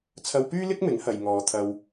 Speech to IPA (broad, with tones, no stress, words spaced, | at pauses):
t͡sʰɐ˧wpyː˥ lɪ˥k̚mɪ˨˥ŋ hɐ˨jŋɔː˨˧t̪ʰɐ˧w